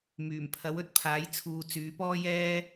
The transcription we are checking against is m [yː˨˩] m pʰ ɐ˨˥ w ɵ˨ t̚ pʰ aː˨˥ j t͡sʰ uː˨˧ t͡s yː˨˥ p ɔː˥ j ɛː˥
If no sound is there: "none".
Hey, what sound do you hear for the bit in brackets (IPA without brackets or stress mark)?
yː˨˩